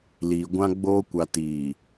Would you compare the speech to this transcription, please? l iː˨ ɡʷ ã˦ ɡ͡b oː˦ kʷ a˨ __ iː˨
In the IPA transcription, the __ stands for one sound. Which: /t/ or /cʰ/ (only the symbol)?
t